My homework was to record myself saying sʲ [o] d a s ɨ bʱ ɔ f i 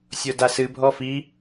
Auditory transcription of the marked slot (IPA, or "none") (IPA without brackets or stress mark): o